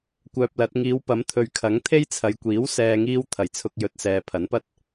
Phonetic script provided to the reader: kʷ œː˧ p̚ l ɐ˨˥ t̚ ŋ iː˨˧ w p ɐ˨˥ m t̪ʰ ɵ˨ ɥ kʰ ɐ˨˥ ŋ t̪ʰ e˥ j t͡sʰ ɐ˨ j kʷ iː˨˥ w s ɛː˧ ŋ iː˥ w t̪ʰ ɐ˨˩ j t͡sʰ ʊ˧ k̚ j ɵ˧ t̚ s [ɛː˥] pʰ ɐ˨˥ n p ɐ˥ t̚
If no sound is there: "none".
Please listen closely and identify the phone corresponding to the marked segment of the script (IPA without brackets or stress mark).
ɛː˨